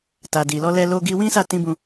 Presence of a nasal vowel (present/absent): present